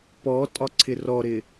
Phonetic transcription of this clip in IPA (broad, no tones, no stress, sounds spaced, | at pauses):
p ɔ tʼ ɒ ǀʰ ɪ r ɔ ɾ ɪ